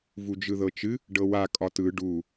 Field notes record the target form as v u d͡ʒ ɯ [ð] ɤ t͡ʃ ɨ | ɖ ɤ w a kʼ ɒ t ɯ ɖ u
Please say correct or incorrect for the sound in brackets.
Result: correct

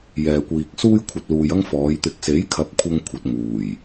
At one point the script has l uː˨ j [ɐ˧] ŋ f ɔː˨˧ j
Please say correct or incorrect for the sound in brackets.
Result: incorrect: ɐ˥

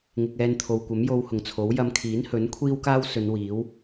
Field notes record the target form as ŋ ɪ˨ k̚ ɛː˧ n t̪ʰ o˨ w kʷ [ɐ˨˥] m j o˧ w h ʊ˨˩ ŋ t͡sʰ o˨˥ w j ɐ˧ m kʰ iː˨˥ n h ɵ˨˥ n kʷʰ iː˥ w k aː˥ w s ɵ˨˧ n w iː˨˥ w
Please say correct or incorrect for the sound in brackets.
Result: correct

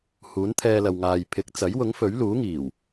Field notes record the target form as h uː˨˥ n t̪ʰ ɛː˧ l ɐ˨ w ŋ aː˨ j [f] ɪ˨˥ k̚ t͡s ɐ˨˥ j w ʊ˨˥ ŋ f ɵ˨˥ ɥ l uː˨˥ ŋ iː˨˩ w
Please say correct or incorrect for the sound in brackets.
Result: incorrect: pʰ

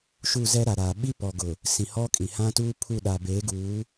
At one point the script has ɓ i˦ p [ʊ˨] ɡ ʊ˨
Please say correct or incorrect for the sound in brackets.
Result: incorrect: ɔ˨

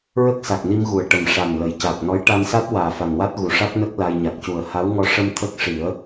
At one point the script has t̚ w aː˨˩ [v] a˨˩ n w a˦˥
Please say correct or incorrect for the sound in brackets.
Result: incorrect: f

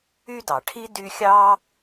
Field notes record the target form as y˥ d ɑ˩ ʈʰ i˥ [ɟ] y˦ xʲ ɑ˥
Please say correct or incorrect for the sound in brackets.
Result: incorrect: d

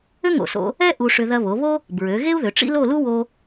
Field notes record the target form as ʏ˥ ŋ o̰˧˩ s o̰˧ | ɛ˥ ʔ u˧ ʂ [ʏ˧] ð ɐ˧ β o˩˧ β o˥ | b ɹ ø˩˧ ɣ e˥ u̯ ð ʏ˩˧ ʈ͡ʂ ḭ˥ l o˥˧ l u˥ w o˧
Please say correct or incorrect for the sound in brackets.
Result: correct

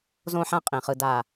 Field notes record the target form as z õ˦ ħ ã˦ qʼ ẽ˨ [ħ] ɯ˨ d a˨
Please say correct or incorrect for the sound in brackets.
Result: incorrect: χ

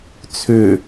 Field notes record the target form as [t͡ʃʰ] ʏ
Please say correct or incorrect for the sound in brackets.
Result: incorrect: t͡sʰ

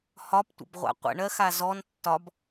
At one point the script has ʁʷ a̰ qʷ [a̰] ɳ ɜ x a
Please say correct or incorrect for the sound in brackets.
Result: incorrect: ə̰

